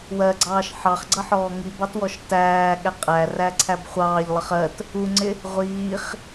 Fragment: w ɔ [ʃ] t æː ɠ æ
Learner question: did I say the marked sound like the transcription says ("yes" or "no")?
yes